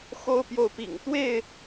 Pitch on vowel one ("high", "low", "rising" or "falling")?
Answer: high